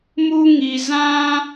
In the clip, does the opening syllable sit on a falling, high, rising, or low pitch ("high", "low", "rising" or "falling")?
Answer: high